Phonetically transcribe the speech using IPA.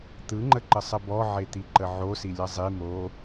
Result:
t̪ ɯ ŋ͡ǃ ə ǃ ə sˤ ə b ɔ ʕ e t̪ i ǃ ə ʕ o s i lʲ ʌ zˤ i m o

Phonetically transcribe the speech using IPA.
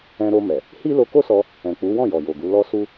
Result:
ɛ̃˧ ɾ o˧ m ɛ˨ | h i˦ l o˧ k o˦ s ɔ˧ | ɛ̃˨ k͡p u˨˦ w ɔ̃˦˨ j ɔ˨ j o˨ ɡ u˨˦ l ɔ˦ s u˦

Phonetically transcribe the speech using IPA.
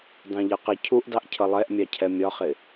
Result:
d ɑ̃ ʎ ʌ q ɪ cʰ u ʔ d ɑ ʔ cʰ ʌ lˠ ɛ ʔ mʲ ɑ cʰ ɛ mʲ ɒ χ ɪ

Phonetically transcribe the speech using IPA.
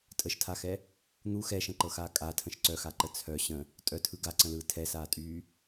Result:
tʼ ə ʃ tʰ a x ɛ | n̪ u x ɛ ʃ ə̃ ǃ ɤ x aː kʼ a tʰ ə̃ ʃ ǀ œ x a ǃ ə t͡sʰ œ ɕ ə̃ | tʼ œ tʰ ɯ ɡ a ǀ ə̃ l ɯː tʰ ɛ s aː tʼ yː

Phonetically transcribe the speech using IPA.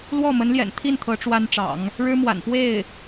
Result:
l w ɔ˥˩ m ə˧˥ n l j ɛ̰˨˩ n t̪ʰ i˥˩ n t̪ʰ ɤ˧˥ ʈ͡ʂ w a˥ n ʈ͡ʂ ɑ̰˨˩˦ ŋ | ɻ ɻ̩˥ m w a̰˨˩ n p w e˥˩ ɪ̯

